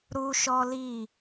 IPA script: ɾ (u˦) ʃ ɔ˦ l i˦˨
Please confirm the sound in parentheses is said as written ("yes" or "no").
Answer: yes